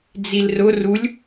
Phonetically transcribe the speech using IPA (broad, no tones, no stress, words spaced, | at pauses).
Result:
d͡zilrʊ rulʲ